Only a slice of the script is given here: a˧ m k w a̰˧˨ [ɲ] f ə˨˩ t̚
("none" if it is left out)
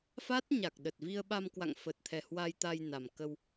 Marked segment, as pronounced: ŋ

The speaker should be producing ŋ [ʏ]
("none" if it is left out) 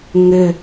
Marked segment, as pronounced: ʏ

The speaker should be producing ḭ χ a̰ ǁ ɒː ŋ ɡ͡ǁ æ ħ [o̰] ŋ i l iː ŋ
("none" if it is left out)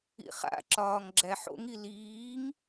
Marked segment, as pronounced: o̰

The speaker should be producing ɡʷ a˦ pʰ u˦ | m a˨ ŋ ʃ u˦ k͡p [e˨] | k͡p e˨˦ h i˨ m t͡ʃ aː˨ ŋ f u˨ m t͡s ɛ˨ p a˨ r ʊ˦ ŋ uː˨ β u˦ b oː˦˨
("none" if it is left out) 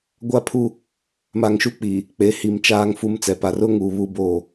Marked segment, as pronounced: i˨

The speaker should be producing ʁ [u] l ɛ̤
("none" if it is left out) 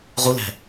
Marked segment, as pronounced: u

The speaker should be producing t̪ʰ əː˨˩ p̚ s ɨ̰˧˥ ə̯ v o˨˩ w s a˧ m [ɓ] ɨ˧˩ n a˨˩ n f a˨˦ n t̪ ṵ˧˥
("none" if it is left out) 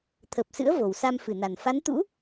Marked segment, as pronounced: f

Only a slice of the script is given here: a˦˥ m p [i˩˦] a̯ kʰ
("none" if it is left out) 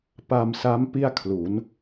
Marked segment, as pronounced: i˥˩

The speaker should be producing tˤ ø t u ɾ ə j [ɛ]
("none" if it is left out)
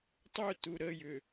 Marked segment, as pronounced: ʏ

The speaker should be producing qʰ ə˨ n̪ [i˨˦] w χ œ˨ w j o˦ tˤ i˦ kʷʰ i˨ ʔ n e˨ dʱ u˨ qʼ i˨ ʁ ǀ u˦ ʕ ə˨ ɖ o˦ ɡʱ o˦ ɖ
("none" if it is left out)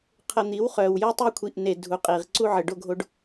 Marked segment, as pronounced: i˨˦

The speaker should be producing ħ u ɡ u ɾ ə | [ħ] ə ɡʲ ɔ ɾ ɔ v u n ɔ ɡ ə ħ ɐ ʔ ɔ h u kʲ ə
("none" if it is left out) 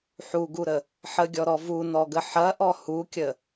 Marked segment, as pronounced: ħ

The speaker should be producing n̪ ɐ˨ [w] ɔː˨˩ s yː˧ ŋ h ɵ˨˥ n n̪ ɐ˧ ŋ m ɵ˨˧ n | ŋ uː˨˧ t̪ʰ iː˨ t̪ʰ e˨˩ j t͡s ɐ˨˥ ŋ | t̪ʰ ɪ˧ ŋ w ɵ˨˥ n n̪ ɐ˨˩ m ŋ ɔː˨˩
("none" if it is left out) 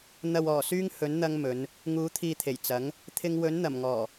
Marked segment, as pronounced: w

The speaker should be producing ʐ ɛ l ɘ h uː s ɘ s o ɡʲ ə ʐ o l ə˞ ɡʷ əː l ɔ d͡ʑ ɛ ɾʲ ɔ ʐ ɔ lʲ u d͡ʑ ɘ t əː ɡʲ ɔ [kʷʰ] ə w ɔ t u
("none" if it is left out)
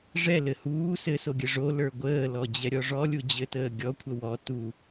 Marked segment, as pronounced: kʷʰ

